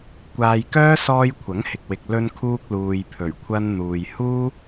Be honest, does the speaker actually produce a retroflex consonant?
no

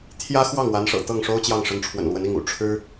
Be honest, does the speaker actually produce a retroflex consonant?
yes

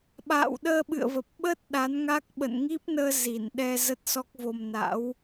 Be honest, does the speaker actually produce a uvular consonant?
no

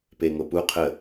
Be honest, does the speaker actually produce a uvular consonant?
yes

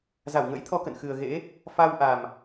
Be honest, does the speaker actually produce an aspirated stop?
yes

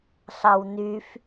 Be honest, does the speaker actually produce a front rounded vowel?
yes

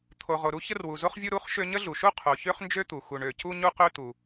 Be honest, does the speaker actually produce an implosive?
no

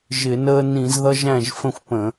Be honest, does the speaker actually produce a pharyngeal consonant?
no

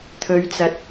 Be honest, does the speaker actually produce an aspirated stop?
yes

